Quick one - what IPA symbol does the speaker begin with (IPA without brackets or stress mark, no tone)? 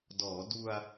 d